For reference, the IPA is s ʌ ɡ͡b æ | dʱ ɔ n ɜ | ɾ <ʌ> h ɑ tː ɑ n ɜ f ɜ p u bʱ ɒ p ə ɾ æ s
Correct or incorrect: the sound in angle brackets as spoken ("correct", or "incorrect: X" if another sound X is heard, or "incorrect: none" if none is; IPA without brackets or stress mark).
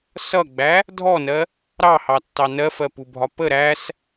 incorrect: ɑ